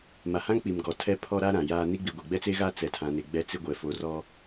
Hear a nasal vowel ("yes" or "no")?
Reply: yes